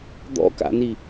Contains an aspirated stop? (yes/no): no